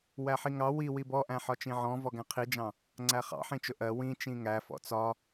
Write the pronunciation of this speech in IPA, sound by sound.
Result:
wæħiŋɑ wi wibɔʔæ̃ ħɒt͡ʃĩʕɔ̃ vɔɡæ̃qʰid͡ʒɑ̃ | ŋ͡ǀæχɑ̰ħĩt͡ʃʊ ʔɜ wĩ t͡ʃĩŋæ fɔ̰t͡sɒ

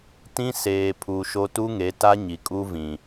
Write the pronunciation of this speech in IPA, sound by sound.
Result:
tĩ˦seː˨pʰu˨ʃo˦ tu˦ŋe˨˦ ta˦ɲi˨kʼu˦ vĩ˨

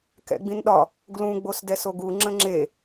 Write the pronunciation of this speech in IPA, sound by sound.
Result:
kɛ̰ɡ͡bĩnɗɒ | ɡlũ ɡ͡bosdɛsoɡu ŋ͡ǁə̃ŋ͡ǁe

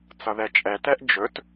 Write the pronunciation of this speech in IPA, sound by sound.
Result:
t͡sʌðɛt͡ʃʼɛtɛʔ d͡ʒɵt

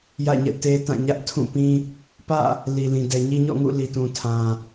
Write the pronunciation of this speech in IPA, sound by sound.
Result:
jä̰˦˨ɲɛ̰˦˨te˦tã˦˨ ɲä˦ʔtʰũ˦˨pĩ˦ | pä̰˦˨ | li˨lĩ˨ dɛ˨ɲi˦ ɲɔ̰˦˨ ŋṵ˦˨li˨tũ˨ tʰã˨

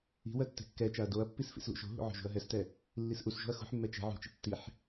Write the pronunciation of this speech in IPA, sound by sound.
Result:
i̤wɜ tːɛ̤kːɛt͡ʃaɐ̯ doɐ̯pːis fḭslṵʃo̤ɦṵ ʕo̤ʒṳɐ̯ɦɛstɛ | lːisʔusʒo̤ɐ̯ xṳħmːɛ t͡ʃɛ̤ ʕṳt͡ʃḭ tːiħ

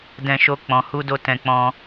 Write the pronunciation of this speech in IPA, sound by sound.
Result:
dɛ̃˨ ʃo˧k͡pɔ̃˨ hu˧do˧ tɛ̃˧k͡pɔ̃˧

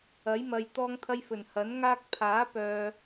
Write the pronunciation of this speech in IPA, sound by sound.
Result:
ɐ˨˥jmɐ˨j t̪ɔː˧ŋt̪ʰɐ˧j fɵ˨˩nhɐ˨˥nŋaː˥k̚ pʰaː˨˥pœː˨

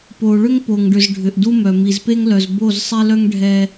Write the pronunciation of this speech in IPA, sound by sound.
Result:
po˨ ɭʏ˦ŋpo˨ŋɖʏ˨z ɖʱʏ˨ʔdu˦mœ˨ mi˨zpe˦ŋlœ˨z bo˦˨z sˤe˦lœ˦ŋ ɖʱɛ˦

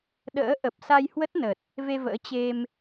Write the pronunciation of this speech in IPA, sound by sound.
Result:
ɗə̰ː˧˥ ʔə˨˩p̚ sa˧jhwə˦˥t̚nə˨˩t̚ | ve˧və̰ː˧˥ t͡ɕe˧m

